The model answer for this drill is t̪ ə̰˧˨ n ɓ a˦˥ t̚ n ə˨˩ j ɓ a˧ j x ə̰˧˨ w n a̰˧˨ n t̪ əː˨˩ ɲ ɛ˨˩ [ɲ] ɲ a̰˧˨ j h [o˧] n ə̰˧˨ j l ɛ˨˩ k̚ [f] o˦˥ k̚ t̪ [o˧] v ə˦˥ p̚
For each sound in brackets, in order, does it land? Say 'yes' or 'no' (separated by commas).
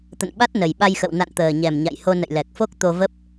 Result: no, yes, yes, yes